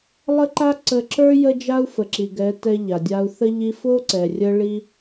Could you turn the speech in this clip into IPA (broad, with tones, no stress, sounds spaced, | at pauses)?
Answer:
lˠ ə˦ ǃ a˦ ǀ ə˧ ǁ ə˞˦ j ə˦ d͡ʒ a˦ u̯ f ə˨ ǁ i˨ ɡ ɛ˨˦ t ɛ˧ ʎ a˨ dʲ a˧ u̯ θ ə˦ ʎ i˧ f o˦ ǀ ɛ˨ rʲ ə˧ ɭ i˦